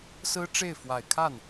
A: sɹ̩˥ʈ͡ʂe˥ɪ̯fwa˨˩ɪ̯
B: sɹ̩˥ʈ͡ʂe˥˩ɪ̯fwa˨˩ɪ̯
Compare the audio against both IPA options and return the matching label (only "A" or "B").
B